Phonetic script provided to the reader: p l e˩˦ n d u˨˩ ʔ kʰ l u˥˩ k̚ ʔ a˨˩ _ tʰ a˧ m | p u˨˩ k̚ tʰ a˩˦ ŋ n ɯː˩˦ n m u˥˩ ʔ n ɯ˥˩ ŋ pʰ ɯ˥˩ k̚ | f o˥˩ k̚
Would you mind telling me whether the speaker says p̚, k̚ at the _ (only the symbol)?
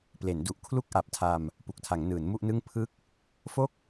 p̚